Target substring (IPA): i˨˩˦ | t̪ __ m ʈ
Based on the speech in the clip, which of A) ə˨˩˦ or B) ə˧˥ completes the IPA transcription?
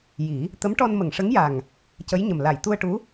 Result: B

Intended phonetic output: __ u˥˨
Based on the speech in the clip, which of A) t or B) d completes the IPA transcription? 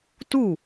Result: A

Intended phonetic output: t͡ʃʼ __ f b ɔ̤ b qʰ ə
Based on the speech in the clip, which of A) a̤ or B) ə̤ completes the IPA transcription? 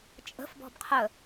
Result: B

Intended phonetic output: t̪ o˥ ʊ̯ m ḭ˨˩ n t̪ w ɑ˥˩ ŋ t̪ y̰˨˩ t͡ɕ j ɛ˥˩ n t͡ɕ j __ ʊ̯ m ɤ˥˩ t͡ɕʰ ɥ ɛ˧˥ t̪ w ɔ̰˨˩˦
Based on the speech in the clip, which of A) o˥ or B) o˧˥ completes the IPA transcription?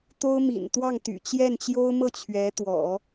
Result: A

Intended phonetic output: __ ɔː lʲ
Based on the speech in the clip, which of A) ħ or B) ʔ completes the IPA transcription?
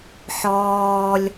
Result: A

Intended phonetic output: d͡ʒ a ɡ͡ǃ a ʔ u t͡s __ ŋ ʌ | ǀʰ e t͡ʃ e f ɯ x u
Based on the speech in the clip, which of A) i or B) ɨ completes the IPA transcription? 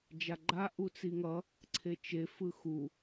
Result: A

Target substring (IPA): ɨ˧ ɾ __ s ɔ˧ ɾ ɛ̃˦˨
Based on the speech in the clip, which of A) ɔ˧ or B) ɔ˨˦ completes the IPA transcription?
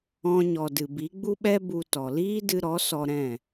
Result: B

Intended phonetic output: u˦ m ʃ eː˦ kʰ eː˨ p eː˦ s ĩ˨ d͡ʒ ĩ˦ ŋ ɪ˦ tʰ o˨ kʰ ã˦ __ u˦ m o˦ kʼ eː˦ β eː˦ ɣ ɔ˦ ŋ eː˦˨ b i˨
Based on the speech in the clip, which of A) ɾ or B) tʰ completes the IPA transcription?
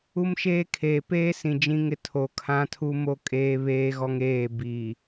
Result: B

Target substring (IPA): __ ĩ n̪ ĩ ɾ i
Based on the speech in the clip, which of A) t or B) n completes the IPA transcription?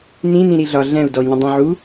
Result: B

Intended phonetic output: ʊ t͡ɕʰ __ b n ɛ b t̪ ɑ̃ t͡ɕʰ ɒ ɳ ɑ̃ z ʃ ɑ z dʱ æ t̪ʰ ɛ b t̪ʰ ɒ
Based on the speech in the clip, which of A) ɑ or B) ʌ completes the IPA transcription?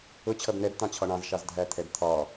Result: B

